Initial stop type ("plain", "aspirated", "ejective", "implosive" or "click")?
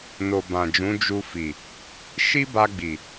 plain